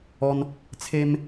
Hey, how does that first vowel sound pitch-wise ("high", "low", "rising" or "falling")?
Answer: high